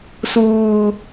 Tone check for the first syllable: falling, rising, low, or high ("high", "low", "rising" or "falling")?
low